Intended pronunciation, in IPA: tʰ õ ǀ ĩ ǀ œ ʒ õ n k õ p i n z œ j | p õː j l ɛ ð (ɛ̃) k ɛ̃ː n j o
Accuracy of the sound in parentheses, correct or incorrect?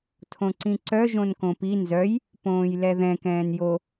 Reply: correct